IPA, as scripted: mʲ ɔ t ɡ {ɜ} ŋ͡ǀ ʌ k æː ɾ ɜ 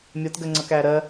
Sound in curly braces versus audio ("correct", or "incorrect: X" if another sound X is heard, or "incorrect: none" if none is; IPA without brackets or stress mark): correct